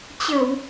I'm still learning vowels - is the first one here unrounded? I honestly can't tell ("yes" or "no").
yes